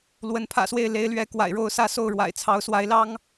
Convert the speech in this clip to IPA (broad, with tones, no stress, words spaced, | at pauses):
lwə˧˥npʰä̰˨˩swe˥˩ɪ̯ le˥ɪ̯lɥɛ˧˥ kwa̰˨˩ɪ̯ɻo˥˧ʊ̯sä˥˧so˥˩ʊ̯ ɻwa̰˨˩ɪ̯t͡sʰɑ˧˥ʊ̯swa˧˥ɪ̯lɑ˥ŋ